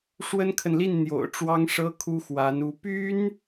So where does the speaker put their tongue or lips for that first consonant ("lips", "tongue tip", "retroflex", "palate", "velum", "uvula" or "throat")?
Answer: retroflex